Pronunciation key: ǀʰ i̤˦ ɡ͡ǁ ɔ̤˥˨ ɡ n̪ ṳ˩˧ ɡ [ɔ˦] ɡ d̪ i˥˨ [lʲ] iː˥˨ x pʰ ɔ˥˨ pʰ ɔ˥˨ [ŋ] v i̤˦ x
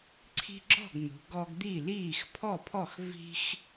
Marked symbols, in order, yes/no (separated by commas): yes, no, no